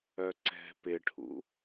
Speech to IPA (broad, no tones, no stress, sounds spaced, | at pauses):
œ ǀ ɛ̤ p ɪ ʈʰ ṵ